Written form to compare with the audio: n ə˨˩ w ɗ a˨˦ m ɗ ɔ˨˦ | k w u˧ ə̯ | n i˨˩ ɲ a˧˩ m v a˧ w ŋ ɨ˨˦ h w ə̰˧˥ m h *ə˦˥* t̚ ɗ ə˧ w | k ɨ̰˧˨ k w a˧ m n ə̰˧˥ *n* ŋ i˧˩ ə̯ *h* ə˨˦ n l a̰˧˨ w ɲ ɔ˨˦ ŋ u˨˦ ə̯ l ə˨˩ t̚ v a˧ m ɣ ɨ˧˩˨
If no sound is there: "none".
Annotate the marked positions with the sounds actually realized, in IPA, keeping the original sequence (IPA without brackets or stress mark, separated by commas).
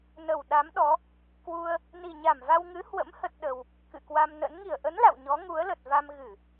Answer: ə˦˥, n, ʔ